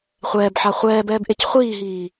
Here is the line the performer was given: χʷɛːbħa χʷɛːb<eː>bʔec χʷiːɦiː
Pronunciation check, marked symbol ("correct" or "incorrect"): incorrect